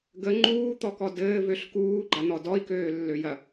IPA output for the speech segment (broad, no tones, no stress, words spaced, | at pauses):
ɡə ŋ͡ǃuːt̪ɔkɔ dɘː vøɬkuːɡ͡ǃan̪ɔ dɔi̯køːlːøjɐ